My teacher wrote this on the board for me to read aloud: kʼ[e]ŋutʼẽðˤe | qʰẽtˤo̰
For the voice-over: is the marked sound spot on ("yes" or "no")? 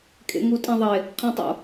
no